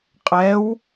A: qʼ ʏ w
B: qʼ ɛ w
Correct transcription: B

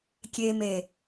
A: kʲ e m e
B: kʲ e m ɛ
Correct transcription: A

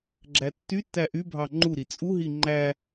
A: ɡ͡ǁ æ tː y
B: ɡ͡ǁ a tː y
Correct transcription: A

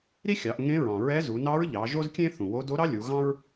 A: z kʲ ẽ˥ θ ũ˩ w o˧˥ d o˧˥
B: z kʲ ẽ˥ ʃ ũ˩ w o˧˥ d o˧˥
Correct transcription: A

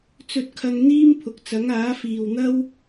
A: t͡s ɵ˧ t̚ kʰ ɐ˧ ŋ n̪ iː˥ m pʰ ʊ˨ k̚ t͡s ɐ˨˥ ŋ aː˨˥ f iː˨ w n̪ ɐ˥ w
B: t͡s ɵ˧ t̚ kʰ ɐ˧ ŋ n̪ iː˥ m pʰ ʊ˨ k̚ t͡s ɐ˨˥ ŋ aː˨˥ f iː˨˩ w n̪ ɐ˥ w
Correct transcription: A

